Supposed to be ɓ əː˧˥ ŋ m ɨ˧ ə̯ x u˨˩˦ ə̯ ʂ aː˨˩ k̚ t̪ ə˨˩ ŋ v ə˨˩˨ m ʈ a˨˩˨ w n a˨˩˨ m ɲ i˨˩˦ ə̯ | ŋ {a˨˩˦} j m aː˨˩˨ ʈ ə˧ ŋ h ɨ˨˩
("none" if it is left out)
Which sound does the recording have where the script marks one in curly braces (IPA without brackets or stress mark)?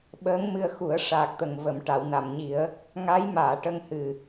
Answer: a˧˥